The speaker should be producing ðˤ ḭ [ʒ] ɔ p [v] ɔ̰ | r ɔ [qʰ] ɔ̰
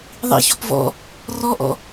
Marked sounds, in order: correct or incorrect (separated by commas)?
incorrect, correct, incorrect